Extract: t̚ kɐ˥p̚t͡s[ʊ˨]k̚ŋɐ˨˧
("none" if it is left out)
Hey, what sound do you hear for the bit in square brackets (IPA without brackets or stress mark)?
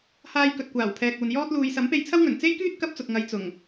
ʊ˨